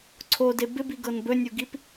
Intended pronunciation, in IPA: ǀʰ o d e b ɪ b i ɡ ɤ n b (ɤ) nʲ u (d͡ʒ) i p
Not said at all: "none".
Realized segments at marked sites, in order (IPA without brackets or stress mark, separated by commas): ɵ, ɡ